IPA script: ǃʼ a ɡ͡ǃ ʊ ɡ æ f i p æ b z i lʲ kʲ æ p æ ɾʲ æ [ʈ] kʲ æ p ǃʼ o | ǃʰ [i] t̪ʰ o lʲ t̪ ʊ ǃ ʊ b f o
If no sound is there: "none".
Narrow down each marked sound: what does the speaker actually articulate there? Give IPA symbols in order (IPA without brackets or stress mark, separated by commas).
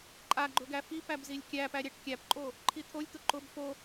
ʈ, i